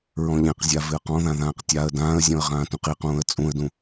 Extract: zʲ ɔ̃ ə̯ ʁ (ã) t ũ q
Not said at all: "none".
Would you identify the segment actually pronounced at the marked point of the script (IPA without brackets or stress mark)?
ãː